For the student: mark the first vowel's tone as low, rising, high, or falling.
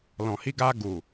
low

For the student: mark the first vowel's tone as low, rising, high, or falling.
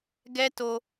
high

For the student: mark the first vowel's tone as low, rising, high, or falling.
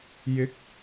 rising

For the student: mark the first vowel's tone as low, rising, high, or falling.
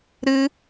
high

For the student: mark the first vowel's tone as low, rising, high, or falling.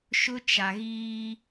high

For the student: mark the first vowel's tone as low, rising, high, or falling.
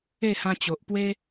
falling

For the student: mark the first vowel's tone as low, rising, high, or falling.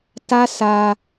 high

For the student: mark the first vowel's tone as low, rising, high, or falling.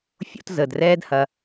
high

